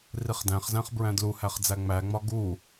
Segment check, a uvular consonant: present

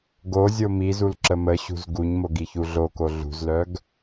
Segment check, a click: present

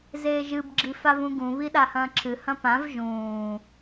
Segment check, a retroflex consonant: absent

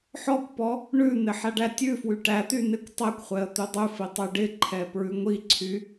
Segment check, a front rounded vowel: present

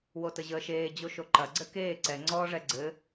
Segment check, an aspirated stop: absent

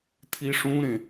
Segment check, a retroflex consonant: present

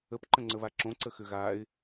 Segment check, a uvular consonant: absent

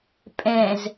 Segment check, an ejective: present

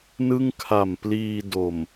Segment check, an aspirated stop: present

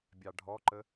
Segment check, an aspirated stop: absent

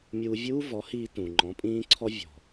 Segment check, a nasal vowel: present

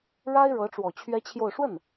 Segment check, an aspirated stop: present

